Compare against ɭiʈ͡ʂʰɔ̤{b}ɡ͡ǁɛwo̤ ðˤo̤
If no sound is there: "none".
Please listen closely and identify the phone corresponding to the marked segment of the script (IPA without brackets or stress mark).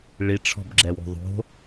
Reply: b